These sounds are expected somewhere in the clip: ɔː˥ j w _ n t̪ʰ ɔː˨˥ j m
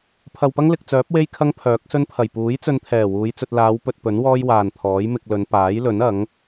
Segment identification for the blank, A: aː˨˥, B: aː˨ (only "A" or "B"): B